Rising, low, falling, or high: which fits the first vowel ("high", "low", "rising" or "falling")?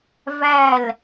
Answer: falling